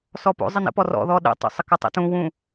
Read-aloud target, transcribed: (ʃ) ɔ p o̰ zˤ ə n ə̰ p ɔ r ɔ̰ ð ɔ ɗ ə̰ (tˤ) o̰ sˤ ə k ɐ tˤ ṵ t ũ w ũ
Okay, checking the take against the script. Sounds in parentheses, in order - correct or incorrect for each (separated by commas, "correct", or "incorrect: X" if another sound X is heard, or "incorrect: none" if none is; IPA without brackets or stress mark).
incorrect: s, correct